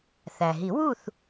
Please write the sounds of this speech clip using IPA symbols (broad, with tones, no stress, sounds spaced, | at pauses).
θ æ˩ ɦ i˨˩˦ w u˥˨ θ